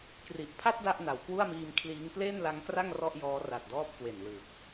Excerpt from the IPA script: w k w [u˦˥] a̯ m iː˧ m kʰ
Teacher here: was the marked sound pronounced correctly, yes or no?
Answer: no